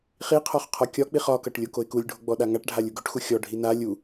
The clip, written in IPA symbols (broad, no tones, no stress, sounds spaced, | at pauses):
χ i qʰ ɒ χ qʰ ɒ kʲ ɒ k͡p i χ ɒ k ʌ ʈ lʲ o k o ɪ̯ k u lʲ ɖʱ o ɡ͡b ɔ ɗ a ŋ a ʈ ɖʱ a lʲ u ɡ ɵ ʈ x u xʲ ɔ ɖʱ i n a lʲ u